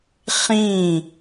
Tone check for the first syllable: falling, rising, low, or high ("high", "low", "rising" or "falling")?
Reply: falling